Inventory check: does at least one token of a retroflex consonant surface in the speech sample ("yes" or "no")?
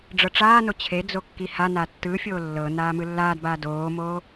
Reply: yes